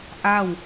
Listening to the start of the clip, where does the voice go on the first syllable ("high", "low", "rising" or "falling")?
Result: falling